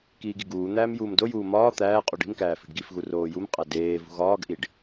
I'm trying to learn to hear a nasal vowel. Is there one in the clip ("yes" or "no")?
no